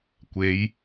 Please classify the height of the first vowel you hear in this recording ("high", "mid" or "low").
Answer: mid